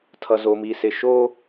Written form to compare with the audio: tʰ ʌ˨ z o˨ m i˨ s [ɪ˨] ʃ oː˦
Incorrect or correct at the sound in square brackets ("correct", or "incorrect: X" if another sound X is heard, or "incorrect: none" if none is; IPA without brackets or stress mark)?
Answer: correct